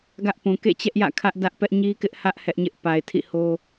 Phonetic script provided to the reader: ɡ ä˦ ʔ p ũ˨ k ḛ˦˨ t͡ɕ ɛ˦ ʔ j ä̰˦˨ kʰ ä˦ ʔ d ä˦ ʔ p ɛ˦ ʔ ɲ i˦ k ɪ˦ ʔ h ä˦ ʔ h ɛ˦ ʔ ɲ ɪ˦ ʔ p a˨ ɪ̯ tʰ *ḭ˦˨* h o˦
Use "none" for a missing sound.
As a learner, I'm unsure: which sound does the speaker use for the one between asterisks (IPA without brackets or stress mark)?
ḭ˦˨